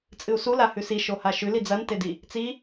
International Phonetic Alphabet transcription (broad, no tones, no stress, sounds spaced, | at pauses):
t͡sʼ ɨ u̯ s u l a h ʉ s i ʃ o h a ʃ ʉ l i d͡z ɐ n t e d i | t͡s i